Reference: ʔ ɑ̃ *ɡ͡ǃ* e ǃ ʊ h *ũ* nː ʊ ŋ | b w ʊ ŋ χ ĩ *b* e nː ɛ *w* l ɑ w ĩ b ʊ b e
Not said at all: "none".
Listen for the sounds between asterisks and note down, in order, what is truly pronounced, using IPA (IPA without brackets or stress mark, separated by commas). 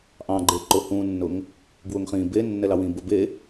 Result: ɡ͡ǃ, ũ, b, none